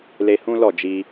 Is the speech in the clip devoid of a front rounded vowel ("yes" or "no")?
yes